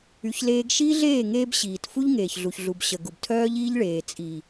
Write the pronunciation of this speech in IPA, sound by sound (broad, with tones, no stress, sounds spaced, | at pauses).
y˧ ç l eː˦ ɡ ʃ iː˦ ɮ eː˦˨ ŋ eː˦ b ɕ iː˨ t f u˦ ʎ ŋ eː˨ ç ɮ u˨ ç ɮ u˨ b ɕ ə˨ ɡ u˨ b tʰ œː˦ ʎ iː˦ ʎ ɭ eː˨ t͡sʼ i˨